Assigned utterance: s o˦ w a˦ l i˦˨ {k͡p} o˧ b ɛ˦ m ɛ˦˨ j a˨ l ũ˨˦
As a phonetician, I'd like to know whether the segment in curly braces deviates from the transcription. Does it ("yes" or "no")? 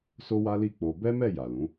no